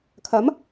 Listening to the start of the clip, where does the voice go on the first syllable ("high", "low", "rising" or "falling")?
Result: rising